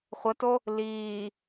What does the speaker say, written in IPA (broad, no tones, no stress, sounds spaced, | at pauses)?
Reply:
χʷ ə t o | l iː